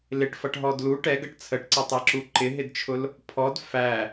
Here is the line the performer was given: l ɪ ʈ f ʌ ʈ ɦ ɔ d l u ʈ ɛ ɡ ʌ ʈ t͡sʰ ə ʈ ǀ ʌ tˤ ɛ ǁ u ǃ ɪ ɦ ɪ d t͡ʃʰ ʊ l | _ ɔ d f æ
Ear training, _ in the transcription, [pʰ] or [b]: pʰ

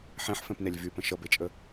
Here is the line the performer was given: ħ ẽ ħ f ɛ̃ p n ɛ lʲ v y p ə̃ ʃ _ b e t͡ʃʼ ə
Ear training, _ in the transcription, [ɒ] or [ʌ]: ʌ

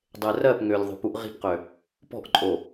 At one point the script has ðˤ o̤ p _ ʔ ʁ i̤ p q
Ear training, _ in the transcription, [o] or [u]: u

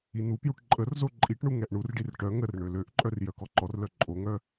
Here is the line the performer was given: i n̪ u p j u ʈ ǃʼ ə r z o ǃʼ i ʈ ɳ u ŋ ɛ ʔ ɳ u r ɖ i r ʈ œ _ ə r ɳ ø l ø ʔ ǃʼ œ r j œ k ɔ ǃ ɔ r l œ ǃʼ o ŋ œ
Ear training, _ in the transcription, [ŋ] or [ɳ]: ŋ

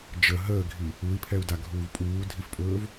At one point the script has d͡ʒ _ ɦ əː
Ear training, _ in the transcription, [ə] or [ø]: ə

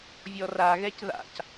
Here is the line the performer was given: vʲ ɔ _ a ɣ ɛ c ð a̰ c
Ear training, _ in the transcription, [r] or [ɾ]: r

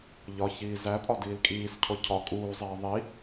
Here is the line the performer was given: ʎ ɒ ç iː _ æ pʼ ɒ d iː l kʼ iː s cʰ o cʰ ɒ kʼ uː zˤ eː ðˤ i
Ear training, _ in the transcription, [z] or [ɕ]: z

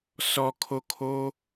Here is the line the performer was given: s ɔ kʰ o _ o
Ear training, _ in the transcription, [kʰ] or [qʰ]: kʰ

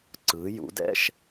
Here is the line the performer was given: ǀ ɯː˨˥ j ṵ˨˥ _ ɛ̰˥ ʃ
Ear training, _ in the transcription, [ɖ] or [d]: d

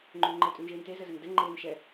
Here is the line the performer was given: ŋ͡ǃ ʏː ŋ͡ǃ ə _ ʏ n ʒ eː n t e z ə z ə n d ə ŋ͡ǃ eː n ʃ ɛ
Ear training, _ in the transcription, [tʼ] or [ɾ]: tʼ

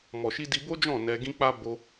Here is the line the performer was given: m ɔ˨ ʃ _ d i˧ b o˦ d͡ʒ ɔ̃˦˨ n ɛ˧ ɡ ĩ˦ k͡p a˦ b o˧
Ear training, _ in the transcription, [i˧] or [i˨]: i˧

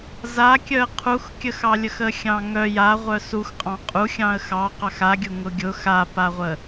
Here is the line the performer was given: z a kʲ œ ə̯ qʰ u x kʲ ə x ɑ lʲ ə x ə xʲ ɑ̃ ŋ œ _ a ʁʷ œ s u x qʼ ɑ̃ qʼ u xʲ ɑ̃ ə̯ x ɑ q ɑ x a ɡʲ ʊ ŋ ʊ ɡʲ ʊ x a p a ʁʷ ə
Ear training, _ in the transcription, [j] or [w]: j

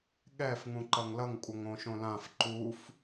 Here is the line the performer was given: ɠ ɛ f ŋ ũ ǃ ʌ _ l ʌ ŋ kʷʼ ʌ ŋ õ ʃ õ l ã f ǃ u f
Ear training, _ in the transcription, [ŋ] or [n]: ŋ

